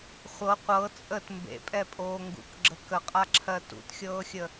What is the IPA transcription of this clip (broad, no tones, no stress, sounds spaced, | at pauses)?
χʷ ɤ qʷ ɤ t͡sʼ ə t m b ḛ pʼ ɛ pʼ oː ŋ ɡ ṵ k ɡ͡ǁ ə k ə qʼ a ǁʰ ɜ t ṵ t xʲ ɤː xʲ ə